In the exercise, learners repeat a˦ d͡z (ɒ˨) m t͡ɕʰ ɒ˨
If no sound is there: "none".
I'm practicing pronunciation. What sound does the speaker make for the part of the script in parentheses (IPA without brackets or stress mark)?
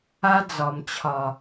ɒ˨